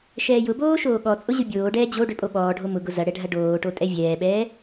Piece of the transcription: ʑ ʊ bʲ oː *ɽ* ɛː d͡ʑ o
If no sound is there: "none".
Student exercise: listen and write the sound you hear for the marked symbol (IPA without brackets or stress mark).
ɖ